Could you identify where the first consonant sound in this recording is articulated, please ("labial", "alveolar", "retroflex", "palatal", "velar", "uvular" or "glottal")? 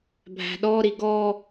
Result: labial